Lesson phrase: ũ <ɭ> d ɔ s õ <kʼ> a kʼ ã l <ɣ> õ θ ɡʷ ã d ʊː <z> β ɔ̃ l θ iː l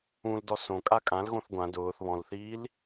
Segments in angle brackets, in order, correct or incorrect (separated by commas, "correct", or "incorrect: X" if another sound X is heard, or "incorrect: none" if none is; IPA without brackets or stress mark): incorrect: l, correct, correct, incorrect: θ